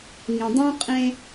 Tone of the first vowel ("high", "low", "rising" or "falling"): low